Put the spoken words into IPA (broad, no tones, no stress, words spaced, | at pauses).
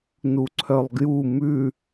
nuǀʰœlˠɡju mʉ